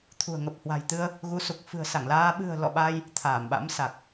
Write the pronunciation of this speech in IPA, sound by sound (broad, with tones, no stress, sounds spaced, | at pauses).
t̪ʰ ṳ˨˩ ə̯ ŋ ə˨˩ p̚ h w a̤˨˩ j t̪ ɨ˧ ə̯ | ɣ u˨˦ s u˨˩ k̚ f ɨ̤˨˩ ə̯ s a˧˩ ŋ l aː˧ ɓ ɨ̤˨˩ ə̯ l ɔ̰˧˨ ɓ a˧ j | t̪ʰ aː˧˩ m ɓ a̰˧˥ m s a˨˩ k̚